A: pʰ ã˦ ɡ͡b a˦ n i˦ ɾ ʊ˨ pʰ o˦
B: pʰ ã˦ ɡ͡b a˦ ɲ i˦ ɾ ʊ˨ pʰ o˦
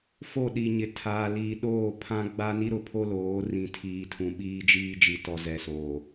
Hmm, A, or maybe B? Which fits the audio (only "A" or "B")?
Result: A